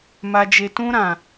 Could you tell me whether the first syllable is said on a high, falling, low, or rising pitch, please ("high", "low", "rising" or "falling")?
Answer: high